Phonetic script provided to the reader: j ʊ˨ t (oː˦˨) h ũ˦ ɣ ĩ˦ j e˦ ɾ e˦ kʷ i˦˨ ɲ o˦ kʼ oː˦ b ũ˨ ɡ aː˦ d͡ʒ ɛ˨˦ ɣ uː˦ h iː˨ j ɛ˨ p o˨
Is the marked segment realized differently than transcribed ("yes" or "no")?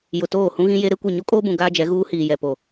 no